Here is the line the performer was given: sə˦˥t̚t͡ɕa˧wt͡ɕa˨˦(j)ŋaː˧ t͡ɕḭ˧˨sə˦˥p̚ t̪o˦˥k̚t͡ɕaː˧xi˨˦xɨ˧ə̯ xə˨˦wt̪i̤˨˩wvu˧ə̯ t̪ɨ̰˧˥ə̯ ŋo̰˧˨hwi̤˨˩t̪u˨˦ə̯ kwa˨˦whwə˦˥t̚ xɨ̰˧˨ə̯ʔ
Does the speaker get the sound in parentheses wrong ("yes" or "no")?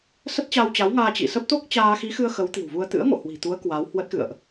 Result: yes